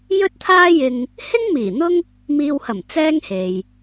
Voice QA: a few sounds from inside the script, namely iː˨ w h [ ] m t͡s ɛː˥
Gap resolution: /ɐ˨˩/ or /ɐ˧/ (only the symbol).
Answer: ɐ˨˩